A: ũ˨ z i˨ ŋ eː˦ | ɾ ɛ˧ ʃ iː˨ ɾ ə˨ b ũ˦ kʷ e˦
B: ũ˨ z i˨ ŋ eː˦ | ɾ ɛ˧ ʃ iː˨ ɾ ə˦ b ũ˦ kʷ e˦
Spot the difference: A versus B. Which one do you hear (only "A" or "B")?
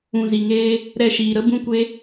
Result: B